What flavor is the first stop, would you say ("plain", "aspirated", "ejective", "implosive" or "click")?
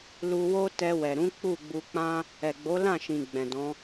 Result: plain